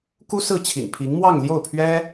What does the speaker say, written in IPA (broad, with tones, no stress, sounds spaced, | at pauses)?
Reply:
k u˥ s ɹ̩˥˩ t͡ɕʰ ḭ˨˩ n pʰ i˧˥ ŋ m w ɑ˥˧ ŋ l j o˥˩ ʊ̯ pʰ ɥ ɛ˥